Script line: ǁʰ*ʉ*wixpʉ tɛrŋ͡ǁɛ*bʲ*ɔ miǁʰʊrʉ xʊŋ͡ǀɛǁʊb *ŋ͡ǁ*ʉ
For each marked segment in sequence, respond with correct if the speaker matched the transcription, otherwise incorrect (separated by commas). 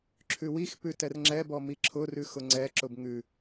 correct, incorrect, incorrect